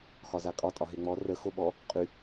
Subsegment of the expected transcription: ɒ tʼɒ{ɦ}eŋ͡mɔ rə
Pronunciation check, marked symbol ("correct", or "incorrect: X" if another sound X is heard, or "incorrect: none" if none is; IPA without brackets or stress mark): correct